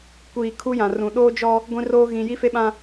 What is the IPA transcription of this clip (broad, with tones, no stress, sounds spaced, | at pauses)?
kʷ iː˨ kʰ u˦ j ã˨ r ũ˨ ɗ oː˦ d͡ʒ ɔ˦ | ɡʷ ĩ˦ r oː˦ ɣ ĩ˨ j i˦ f e˦ ɓ ã˦